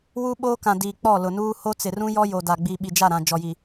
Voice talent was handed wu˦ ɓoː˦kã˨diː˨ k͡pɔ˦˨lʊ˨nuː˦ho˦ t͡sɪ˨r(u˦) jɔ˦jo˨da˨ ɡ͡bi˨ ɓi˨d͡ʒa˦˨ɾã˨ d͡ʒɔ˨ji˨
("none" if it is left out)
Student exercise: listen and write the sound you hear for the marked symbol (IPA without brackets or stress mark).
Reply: ũ˦